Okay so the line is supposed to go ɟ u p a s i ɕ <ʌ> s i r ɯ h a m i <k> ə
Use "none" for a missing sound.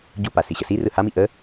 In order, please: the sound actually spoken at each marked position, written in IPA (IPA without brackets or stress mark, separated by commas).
ə, ʔ